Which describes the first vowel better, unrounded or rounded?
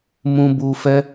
rounded